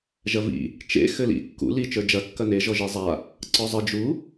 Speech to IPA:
ʒɐvḭ | t͡ʃḛ xɘlḭ kːṵ li t͡ʃə˞d͡ʒɐ kːɐne ʒɔʒezˤa | ǀɔzˤɘ d͡ʒu

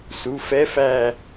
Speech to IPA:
su˩˧˩fɛ˧˥˧fæ˦˨

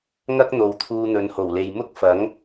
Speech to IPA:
ŋɐ˥k̚n̪o˨w t̪ʰuː˧n̪ɵ˨˧nho˨˩wle˨j mʊ˥k̚fɐ˨˥ŋ

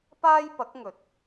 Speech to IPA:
paː˥jpɐ˨˥k̚ŋɵ˨˥t̚

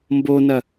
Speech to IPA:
mbonɐ

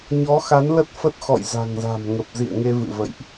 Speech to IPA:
ɲɔ˨˦xa˨˦nlə˦˥t̚ fə˦˥t̚xɔ̰˧˨j za̤˨˩ŋza̤˨˩mŋə˨˩p̚ zḭ˧˨ə̯ŋe˧vɨ̰˧˨və̰˧˨jʔ

